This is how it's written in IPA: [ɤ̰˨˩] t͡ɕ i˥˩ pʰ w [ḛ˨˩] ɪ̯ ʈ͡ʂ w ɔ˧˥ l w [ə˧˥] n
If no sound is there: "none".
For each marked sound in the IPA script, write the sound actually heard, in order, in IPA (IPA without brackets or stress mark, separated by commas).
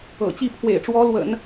ɤ̰˨˩, ḛ˨˩, ə̰˨˩˦